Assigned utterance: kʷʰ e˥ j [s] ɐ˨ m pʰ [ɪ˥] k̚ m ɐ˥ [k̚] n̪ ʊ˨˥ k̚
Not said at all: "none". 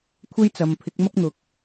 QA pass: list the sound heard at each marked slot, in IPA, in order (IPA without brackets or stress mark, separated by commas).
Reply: t͡s, ɪ˨˥, k̚